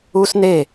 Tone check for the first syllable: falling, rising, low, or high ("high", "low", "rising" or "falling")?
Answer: high